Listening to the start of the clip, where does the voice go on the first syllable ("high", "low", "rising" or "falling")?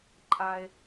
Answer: high